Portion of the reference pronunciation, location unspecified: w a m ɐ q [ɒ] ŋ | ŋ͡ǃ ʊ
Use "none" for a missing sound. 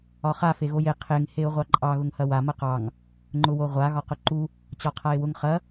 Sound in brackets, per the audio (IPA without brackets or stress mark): ɑ